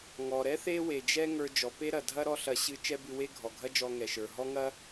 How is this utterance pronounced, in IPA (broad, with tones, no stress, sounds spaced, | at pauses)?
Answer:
ŋ ɔ˩ ɾ ɛ˥ θ e˥ w e˩ d͡ʒ ɛ˥ ŋ ə˞˧ d͡ʒ ɔ˩ p e˥ ɾ ɐ˩ dʱ ɐ˥ ɾ ɔ˥ ɬ ɐ˧ ɕ ɨ˧ t͡ʃ ɛ˥ b ɨ˧ w e˥ ɡʱ ɔ˩ ɡʱ ɐ˥ d͡ʒ ɔ˧ ŋ ɛ˩ ʃ ə˞˩ ɦ ɔ˥ ŋ ɐ˥